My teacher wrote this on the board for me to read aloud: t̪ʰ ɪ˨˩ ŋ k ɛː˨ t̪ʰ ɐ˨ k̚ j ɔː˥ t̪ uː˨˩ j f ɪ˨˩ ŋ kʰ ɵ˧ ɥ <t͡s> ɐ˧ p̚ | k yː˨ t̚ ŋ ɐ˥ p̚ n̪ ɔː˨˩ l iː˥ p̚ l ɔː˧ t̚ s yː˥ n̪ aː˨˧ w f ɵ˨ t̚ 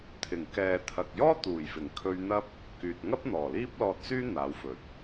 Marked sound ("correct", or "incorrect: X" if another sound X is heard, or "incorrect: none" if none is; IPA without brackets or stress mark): incorrect: n̪